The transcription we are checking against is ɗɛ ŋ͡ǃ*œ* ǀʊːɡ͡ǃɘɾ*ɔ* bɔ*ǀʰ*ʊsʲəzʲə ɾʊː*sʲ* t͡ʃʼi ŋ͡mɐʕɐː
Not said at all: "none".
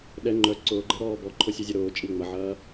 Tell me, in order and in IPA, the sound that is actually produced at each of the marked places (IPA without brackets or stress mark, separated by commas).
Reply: œ, ɔː, ǃʰ, none